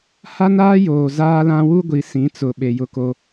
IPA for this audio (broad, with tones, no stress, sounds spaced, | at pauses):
h a˦ n aː˦ j oː˨ z aː˦ l ã˦ w u˦ ɡʷ i˨ s ĩ˨˦ t͡s ʊ˨ ɓ e˨ j ʊ˦ k o˦